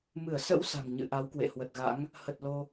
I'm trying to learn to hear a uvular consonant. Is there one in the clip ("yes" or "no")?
no